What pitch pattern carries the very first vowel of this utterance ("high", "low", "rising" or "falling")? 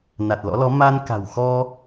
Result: low